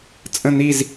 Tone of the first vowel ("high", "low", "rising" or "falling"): falling